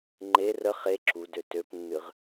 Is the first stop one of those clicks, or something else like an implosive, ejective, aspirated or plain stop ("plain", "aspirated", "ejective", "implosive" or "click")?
click